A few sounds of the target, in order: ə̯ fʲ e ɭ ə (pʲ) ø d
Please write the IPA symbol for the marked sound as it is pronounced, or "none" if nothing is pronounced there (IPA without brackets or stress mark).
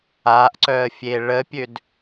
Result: pʲ